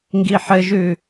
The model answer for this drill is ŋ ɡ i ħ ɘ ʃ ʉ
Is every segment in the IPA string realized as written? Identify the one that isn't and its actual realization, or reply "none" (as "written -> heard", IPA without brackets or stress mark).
ʃ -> ʒ